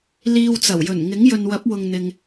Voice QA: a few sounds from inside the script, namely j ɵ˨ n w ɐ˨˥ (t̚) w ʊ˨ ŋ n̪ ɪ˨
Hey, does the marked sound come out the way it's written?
no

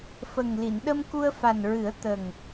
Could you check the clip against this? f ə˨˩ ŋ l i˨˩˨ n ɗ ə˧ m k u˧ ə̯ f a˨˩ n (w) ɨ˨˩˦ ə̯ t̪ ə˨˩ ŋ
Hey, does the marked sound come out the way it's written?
no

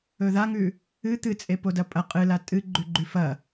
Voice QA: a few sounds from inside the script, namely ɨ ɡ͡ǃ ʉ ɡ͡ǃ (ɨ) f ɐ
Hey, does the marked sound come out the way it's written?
no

